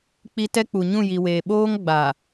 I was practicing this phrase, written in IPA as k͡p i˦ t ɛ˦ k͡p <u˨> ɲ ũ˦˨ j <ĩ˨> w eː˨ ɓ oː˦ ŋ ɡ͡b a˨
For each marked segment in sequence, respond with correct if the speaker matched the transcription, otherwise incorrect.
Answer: correct, incorrect

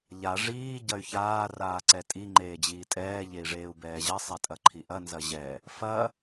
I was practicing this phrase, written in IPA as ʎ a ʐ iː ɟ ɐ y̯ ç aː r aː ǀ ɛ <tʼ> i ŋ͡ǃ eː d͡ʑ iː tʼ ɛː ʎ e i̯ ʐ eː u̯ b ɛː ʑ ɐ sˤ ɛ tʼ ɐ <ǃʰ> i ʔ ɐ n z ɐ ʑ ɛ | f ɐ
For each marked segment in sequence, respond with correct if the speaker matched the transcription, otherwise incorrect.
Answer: correct, correct

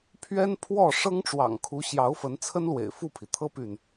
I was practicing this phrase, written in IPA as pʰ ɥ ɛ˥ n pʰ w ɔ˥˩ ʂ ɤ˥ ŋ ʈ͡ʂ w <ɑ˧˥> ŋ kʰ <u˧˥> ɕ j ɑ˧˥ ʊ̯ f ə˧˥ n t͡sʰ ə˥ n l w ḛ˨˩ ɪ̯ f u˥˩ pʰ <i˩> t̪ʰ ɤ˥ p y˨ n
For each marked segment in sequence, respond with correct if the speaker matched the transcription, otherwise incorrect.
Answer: incorrect, correct, correct

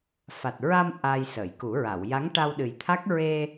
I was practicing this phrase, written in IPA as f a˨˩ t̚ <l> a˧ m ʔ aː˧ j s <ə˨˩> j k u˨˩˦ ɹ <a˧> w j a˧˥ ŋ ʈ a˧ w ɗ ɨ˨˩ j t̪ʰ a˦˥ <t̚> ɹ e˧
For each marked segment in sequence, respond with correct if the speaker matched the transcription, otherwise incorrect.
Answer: incorrect, incorrect, incorrect, incorrect

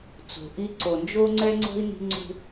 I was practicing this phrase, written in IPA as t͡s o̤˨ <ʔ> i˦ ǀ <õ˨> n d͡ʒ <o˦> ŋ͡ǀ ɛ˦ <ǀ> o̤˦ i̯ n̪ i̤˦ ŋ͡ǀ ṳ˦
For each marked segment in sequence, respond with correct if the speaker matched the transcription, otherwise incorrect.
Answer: correct, incorrect, correct, incorrect

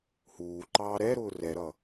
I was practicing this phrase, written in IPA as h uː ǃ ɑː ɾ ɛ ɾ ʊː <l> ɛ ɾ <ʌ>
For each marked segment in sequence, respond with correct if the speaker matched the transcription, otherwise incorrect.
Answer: incorrect, correct

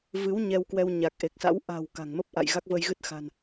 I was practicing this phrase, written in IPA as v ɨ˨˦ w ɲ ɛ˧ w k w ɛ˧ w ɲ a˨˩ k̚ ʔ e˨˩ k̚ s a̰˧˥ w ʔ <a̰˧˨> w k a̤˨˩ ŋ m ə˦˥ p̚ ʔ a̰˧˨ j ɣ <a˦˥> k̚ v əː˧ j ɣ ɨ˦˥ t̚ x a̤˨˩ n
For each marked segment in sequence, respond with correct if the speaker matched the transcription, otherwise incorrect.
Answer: incorrect, correct

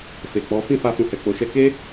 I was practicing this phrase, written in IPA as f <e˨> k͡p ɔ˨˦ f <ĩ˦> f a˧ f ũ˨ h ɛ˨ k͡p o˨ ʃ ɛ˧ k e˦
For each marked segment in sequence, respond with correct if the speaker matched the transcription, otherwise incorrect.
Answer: correct, incorrect

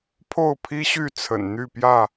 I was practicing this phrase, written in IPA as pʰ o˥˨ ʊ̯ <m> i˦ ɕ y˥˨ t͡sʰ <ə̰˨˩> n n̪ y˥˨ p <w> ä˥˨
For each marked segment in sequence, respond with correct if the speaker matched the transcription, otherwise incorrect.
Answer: incorrect, correct, incorrect

